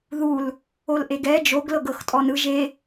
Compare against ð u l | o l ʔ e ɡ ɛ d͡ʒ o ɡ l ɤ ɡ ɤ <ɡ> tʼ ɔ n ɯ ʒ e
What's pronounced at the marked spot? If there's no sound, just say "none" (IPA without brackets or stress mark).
x